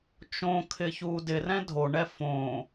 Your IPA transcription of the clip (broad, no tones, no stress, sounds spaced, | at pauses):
t͡ʃ õ kʰ ɪ ç uː d ɪ r ɛ̃ dʱ o ɳ ɛ f õ